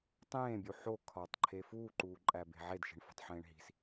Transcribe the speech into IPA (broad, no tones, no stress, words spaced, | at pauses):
tˤẽːbʲu ħo kʰɒtˤǃʰe fuːǃuːǃʼæbe̤ ʕedʃi̤ɳfo̤tˤħẽːɳ ɦi̤s